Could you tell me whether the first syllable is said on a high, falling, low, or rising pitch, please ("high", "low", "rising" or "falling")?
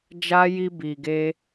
high